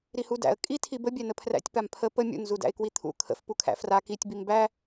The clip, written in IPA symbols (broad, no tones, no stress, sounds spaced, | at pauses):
ɾ i h u d æ̰ ə̯ kʼ i tʰ i b ə bʲ æ n ə pʰ r æ̰ tʲ p a m pʰ ə p ə mʲ ṵ n z u d æ̰ ɪ̯ k w i t̪ʰ ṵ kʰ ə̰ f p u kʰ æ̰ f r a k i tʲ b i m b æ